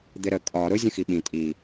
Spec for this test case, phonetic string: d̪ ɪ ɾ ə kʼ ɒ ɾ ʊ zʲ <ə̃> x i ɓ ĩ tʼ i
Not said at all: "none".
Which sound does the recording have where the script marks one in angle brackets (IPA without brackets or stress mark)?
ə̃